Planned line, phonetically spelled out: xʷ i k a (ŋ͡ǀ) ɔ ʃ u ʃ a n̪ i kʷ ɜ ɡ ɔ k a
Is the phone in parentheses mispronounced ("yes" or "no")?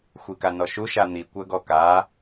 yes